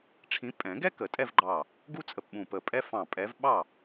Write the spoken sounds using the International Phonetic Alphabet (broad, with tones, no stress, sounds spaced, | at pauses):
ʈ͡ʂʰ ĩ˨˦ pʼ ɛ̃˨˩˦ ɡ ɛ˥ k ə˨˩˦ tʼ ɛ˥˧ v ɡ͡ǃ ɑ˧˩ | ɡ u˥ t͡sʼ ə˧˩ p ɓ ũ˧˩ p ə˧˩ pʼ ɛ˥ f ɑ̃˧˩ pʼ ɛ˨˦ v ɓ ɑ˥˩